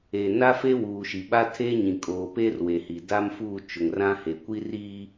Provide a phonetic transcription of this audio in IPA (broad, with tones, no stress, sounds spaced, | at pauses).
e˨ n a˦ f e˦ w uː˨ ʃ i˨ ɓ a˦ tʰ eː˦ ɲ ĩ˨ kʼ oː˨ p eː˦ r w e˨ h i˨ d a˦ m f uː˦˨ t͡ʃ ʊ˨ ŋ r ã˦ h e˨ kʷ i˦ r iː˦